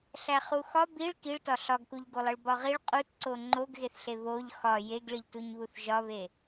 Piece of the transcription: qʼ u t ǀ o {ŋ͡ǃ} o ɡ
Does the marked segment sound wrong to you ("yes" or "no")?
no